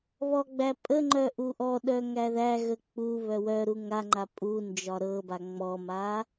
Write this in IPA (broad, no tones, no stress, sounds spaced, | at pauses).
β ɔ ɡ͡b æ pʼ ə ŋ͡ǃ œ ʔ u ʔ ɔ ɗ œ ŋ æ ð æ ɣ ə k͡p u β œ w œ ɾ u ŋ a ŋ͡ǃ a pʼ u n d͡ʒ ɒ ɾ ɤ b a ŋ͡m ɔ m a